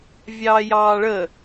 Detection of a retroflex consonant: present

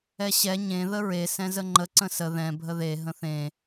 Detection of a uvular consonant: absent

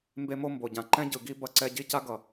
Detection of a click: present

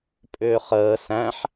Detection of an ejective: present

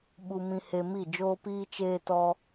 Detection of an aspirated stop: absent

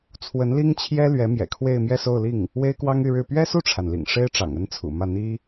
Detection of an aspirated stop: present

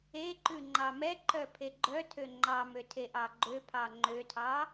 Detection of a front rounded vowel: present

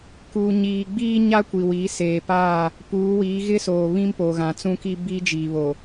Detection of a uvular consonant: absent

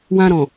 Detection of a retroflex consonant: absent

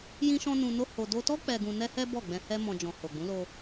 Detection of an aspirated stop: absent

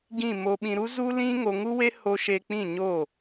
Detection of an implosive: present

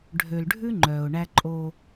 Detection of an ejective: present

